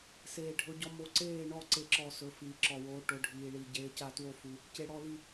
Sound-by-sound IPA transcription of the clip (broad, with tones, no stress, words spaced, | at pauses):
seː˨ɖʱɵ˨˦ɟɔ˨˦ mo˨˦ ǀeː˦˨ɳɔ˦˨ ǀe˦˨ǁɔ˦˨sɵ˨˦ fiː˨ǁɔ˨woː˨˦ ʈo˨˦ɖʱiː˨ɭi˨ ɟeː˨˦ca˦˨two˦˨fu˨ | ce˨ɽɔ˦˨li˦˨